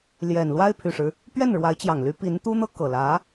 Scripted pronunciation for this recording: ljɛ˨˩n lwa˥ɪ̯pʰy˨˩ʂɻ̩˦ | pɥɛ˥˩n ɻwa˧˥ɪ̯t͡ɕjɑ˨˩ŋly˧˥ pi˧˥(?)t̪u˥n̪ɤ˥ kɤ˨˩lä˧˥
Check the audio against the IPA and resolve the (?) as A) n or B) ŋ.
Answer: A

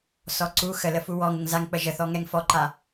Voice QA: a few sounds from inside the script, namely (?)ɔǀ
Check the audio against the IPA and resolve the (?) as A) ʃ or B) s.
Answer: B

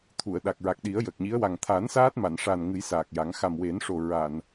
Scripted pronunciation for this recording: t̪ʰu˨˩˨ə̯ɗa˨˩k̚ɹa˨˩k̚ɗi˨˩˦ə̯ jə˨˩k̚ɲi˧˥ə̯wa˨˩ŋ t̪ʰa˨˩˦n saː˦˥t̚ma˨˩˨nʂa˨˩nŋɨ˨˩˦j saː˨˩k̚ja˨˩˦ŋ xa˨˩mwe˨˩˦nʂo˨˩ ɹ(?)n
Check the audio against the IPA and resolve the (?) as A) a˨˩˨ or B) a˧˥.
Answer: A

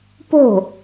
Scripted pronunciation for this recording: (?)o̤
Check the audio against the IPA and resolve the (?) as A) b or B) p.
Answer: B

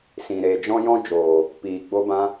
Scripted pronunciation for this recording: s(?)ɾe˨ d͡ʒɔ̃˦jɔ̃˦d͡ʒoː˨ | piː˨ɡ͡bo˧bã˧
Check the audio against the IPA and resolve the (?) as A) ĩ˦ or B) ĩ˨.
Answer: B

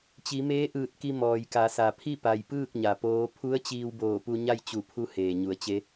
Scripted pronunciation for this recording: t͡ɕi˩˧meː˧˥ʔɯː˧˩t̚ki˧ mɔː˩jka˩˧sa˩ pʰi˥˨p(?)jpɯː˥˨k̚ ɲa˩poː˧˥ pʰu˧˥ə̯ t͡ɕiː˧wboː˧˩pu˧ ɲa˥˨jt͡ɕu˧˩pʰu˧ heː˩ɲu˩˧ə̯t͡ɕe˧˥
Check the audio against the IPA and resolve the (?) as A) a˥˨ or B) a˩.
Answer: B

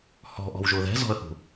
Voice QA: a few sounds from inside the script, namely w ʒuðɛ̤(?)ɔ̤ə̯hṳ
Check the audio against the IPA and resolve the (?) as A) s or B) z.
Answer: B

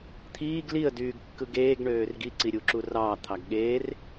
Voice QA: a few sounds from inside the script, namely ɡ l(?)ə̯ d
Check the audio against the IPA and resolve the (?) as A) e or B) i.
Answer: B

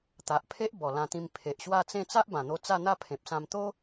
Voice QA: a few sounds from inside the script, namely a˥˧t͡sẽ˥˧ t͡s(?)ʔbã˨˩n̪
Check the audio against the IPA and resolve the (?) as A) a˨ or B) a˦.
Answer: B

